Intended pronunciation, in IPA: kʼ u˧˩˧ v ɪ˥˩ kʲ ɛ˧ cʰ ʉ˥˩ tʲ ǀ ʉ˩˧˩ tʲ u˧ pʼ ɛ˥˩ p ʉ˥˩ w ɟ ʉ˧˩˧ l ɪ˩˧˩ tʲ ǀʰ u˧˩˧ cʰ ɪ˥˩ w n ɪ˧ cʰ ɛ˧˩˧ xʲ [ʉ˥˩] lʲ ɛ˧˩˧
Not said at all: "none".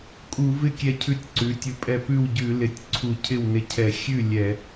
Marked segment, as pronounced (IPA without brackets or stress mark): ʉ˥˩